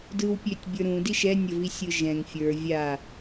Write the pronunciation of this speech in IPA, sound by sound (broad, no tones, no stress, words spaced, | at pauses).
dɯw pʲøtʲbʲə˞ɾũ diʃɛ nʲəvisʲɯʒɛ̃ŋ fʲə˞ vʲa